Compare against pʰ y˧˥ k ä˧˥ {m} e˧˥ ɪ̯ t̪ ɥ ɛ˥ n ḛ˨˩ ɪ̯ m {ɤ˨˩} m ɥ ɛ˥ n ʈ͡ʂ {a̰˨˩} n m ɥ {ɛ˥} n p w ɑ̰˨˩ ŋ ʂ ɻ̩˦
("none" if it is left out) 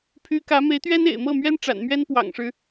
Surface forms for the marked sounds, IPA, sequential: m, ɤ˥˩, a̰˨˩, ɛ˥

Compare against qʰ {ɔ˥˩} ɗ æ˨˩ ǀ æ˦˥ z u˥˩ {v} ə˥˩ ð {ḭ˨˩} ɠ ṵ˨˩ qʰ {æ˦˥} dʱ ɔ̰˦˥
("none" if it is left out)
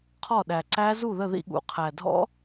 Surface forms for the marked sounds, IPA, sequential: ɔ˥˩, ð, ḭ˥˩, æ˨˩

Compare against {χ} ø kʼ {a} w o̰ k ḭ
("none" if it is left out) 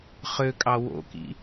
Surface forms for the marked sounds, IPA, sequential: χ, ɑ

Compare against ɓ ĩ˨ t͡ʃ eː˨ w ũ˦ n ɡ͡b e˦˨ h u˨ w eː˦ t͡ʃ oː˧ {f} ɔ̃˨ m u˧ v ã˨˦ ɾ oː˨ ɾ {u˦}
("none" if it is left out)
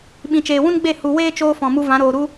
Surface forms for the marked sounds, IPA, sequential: f, u˦

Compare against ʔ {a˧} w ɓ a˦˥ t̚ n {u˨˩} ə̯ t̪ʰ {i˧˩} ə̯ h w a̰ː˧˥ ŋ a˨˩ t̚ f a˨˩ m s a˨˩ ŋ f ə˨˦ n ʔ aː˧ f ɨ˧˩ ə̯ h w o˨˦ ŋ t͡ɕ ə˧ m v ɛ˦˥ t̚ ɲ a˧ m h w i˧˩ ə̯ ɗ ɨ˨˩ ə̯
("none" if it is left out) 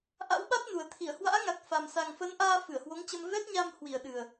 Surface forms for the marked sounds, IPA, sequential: a̰˧˥, u˨˩, i˧˩

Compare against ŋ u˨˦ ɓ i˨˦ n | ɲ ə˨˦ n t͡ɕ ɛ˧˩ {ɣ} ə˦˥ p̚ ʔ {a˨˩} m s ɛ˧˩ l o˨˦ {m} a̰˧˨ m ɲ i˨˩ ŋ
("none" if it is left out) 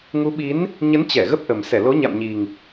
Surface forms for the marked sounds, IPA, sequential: ɣ, ə˨˩, ɲ

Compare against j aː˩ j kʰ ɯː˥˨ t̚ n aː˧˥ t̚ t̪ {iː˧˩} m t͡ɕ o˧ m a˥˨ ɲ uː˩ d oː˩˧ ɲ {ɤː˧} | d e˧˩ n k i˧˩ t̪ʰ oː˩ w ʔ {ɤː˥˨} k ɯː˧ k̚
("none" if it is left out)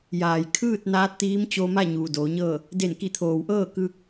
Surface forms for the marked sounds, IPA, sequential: iː˧˥, ɤː˥˨, ɤː˥˨

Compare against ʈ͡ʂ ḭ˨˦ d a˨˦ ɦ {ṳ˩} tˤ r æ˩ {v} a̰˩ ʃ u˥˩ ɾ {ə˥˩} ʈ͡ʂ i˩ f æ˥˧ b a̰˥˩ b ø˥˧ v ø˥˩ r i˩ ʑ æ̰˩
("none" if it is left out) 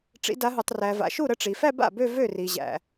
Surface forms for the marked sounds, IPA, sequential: u˩, v, ə˥˩

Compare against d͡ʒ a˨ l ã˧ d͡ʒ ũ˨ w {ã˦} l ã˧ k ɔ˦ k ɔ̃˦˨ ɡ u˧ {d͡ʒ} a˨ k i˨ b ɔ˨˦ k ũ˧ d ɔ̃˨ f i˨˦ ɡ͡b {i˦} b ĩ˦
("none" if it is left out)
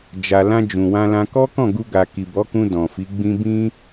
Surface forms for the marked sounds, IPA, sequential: ã˧, ɡ, ĩ˦

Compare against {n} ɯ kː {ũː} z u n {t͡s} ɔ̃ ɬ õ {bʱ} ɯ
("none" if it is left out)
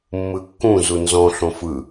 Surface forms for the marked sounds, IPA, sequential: mː, ũ, z, f

